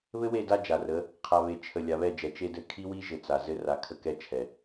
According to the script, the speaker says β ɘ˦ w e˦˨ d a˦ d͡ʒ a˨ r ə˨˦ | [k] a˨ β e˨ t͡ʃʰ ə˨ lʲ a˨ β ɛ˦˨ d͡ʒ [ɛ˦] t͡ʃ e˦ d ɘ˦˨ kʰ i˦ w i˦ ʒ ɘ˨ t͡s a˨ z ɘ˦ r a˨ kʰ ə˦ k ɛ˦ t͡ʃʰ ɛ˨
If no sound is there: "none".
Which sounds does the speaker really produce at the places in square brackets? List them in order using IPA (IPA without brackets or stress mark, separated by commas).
qʰ, ɛ˨